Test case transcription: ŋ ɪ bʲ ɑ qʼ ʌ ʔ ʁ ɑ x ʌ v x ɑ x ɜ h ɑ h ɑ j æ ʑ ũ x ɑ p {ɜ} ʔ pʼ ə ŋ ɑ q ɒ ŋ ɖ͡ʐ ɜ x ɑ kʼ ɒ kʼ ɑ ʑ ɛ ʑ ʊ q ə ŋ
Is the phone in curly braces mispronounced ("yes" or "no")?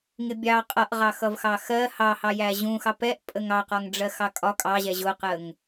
yes